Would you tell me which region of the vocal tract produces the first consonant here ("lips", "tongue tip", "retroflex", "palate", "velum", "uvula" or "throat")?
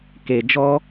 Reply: velum